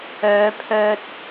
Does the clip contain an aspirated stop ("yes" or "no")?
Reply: yes